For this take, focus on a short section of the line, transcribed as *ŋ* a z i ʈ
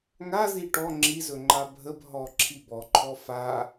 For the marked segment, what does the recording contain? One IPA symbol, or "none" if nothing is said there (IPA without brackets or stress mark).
ŋ